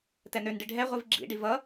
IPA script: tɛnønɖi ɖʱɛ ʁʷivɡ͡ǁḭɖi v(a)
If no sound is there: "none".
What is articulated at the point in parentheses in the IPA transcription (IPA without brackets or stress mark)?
ʌ